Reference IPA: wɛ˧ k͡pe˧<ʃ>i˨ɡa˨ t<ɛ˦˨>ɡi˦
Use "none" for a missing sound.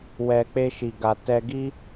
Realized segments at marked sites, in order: ʃ, ɛ˧

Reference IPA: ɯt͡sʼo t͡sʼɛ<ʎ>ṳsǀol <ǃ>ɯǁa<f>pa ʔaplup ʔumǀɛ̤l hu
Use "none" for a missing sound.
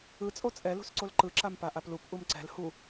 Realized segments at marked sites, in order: l, ǃ, m

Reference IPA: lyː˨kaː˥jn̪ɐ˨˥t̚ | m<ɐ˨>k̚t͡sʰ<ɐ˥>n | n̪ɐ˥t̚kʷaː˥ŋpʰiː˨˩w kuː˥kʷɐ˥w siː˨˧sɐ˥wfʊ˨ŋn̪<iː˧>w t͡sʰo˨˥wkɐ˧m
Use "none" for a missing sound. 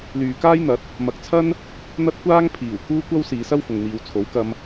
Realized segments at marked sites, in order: ɐ˨, ɐ˥, iː˨

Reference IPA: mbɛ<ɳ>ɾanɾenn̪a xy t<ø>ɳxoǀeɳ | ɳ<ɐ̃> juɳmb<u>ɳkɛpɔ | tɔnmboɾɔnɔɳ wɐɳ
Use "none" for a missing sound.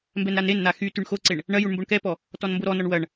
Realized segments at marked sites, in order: n, y, ɐ, o

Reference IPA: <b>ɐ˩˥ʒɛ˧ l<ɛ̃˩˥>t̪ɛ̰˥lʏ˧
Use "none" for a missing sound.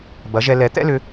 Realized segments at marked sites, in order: b, ɛ˩˥

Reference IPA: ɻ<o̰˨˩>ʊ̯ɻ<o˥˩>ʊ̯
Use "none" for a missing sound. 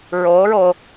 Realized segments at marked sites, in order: o˧˥, o˧

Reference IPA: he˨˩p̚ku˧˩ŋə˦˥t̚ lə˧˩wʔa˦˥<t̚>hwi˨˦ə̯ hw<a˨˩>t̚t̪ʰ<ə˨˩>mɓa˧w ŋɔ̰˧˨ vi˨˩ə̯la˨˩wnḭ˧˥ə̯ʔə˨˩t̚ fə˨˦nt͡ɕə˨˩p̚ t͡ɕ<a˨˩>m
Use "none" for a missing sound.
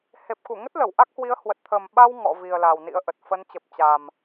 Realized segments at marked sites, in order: k̚, ə˨˩, ə˨˩, a˨˩

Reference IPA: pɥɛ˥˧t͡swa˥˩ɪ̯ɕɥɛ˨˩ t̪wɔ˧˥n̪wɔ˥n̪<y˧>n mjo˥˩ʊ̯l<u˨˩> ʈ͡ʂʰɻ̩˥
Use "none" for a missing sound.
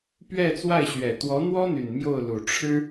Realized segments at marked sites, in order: y˨˩, u˨˩

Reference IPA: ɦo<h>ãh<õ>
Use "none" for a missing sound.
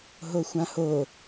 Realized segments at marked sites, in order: xʷ, o

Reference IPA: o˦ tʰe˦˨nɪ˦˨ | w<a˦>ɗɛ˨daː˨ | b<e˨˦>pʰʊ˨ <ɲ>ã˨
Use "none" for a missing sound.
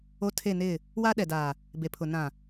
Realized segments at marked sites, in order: a˦, e˨, n

